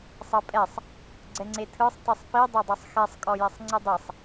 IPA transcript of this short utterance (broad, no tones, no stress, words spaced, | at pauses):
sˤɤpʼɛsˤ | ɡ͡ǀɛŋ͡ǀetʰɯsˤ tisˤpi dˤedˤesˤxɛsˤ kʼɔjɛsˤŋ͡ǀɯdˤesˤ